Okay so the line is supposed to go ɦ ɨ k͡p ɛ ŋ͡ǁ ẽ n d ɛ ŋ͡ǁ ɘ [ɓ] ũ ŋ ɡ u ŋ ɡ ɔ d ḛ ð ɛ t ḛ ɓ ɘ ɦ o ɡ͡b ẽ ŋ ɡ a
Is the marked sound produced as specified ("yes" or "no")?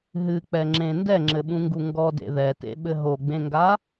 yes